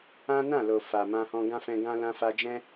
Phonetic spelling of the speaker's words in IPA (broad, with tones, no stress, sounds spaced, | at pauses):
ã˦ n ã˦˨ l o˨ f a˨ m ã˧ h ɔ̃˧ ɡ ã˦ f ɛ̃˧ ɡ ã˦ l ã˧ f a˧ d͡ʒ ɛ̃˦